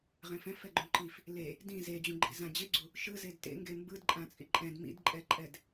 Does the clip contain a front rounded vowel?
no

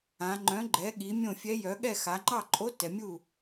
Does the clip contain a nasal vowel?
yes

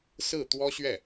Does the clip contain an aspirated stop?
no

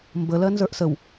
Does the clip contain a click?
no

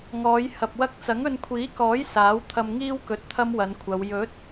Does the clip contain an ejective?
no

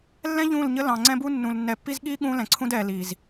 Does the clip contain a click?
yes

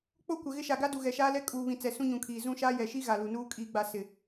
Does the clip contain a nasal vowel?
yes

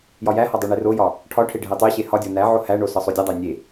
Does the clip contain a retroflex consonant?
yes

